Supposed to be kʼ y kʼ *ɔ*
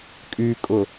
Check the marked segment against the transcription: incorrect: ʊ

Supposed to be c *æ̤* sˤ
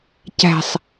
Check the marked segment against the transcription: correct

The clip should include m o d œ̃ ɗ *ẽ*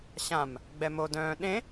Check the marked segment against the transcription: correct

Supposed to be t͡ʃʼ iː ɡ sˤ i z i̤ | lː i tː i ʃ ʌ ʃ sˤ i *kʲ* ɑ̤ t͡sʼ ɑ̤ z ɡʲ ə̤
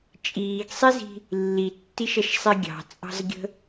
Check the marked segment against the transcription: incorrect: ɡʲ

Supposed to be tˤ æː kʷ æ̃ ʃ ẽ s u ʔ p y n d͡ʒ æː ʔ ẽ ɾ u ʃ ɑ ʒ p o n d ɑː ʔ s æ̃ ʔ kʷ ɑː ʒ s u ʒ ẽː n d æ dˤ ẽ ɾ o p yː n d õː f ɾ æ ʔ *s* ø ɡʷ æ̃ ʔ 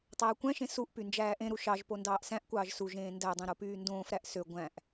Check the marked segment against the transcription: correct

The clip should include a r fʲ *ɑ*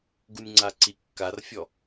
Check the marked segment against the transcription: incorrect: ɔ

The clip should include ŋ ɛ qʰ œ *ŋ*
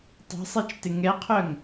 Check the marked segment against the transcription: correct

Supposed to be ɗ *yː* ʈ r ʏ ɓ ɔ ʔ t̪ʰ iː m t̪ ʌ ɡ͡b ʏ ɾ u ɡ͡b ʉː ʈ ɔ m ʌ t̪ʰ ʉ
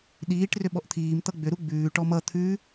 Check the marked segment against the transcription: incorrect: iː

